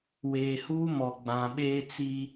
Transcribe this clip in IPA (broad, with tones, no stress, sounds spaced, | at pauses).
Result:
w eː˨ h uː˦ m ɔ˨ ɡ͡b ã˨ ɓ eː˦ t͡s i˦